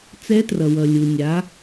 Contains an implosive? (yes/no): no